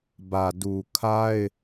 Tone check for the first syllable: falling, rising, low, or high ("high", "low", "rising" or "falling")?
low